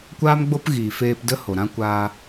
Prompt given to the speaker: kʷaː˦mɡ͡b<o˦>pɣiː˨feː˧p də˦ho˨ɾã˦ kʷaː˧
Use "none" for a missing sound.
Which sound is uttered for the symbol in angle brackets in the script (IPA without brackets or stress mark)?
o˦